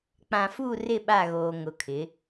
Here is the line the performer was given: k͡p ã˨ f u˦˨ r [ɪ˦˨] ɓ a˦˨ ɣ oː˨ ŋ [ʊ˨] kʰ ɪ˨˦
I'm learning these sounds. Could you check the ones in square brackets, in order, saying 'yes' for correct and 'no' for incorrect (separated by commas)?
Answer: yes, yes